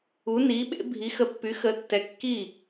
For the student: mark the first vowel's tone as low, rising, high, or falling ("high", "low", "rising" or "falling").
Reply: rising